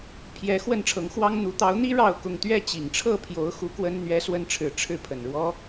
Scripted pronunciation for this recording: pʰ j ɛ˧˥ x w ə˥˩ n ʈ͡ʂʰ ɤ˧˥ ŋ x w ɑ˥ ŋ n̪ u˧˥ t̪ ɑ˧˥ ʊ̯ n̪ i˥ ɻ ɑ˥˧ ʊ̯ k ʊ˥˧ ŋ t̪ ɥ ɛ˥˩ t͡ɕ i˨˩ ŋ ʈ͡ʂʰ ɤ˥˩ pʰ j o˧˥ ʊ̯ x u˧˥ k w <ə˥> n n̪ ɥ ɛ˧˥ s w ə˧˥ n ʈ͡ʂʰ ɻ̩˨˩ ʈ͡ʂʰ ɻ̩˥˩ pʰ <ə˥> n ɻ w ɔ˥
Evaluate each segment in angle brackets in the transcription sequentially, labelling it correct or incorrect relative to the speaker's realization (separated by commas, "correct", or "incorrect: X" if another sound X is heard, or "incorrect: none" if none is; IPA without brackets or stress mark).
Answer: correct, incorrect: ə˨˩